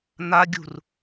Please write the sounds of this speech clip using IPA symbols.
n̪ a ɡʲ ṳ r

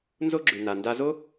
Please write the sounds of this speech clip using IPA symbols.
n z o˥ ɡ͡ǁ ʉ˩ n a˩ n d a˧ z o˥

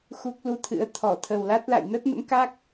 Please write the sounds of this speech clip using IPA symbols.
x u˦˥ k̚ l u˧ t̪ʰ ɨ̰˧˥ ə̯ t̪ʰ ɔ˧˩ t̪ʰ ə˨˩ w l a˦˥ t̚ l a̰˧˨ j n ə˦˥ t̚ n ə̰˧˥ m k a˦˥ k̚

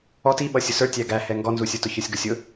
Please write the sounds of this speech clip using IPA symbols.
ɔ t i ɓ ʌ sʲ ʊ s ə˞ tʲ æ ɡ æ h ɛ ŋ ɡ ɔ n z u sʲ ə˞ t ʊ ç ə˞ sʲ ɡ ʊ sʲ ʊ

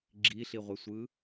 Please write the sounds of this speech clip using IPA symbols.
ɡ͡ǁ i ɬ i ʁʷ ɛ sʷ ɯː

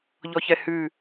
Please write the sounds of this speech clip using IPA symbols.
ʎ ɔ ç ɛ h ʉ

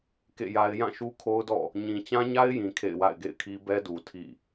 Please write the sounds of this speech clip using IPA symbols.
k ḛ˦˨ j a˦ ɪ̯ j ã˦˨ ʃ u˦ kʰ o˦ ʊ̯ d ɔ̰˦˨ | ɲ ĩ˨ t͡ɕ ã˦ ɲ a˦ ɪ̯ j ĩ˨ kʰ ḛ˦˨ ɪ̯ w a̰˦˨ ɪ̯ ɡ ḛ˦˨ ɪ̯ kʰ i˦ b ɛ˦ d u˨ tʰ ḭ˦˨

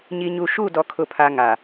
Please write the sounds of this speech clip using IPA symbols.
ɲ i˨ ɲ u˨ ʃ u˦˨ d ɔ˨ kʰ ʊ˨ pʰ a˨ ŋ a˨

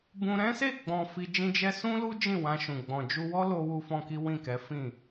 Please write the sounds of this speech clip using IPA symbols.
b ũ˧ ɾ ɛ̃˦ s e˦˨ ɡ͡b ɔ̃˨ f i˧ d͡ʒ ĩ˦ d͡ʒ ɛ˦ s ũ˦ l u˦ d͡ʒ ĩ˦˨ w ã˧ ʃ ũ˨ ɡ͡b ɔ̃˨ d͡ʒ u˧ w ɔ˦ l o˦ w u˦ f ɔ̃˦ k i˦ w ĩ˦˨ k ɛ˨˦ f ĩ˦˨

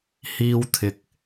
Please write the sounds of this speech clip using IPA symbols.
h iː˧ w t̪ʰ ɪ˨ k̚

